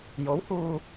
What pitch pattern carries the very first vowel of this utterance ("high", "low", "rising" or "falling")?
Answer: rising